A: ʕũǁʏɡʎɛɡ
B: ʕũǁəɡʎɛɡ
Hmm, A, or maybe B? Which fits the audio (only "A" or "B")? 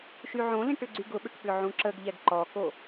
B